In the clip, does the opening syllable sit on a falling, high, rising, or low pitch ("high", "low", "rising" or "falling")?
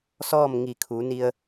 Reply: falling